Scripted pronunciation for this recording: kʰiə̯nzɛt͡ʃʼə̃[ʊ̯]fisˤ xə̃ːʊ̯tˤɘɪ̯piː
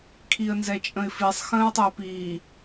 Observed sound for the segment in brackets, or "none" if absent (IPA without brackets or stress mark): ɪ̯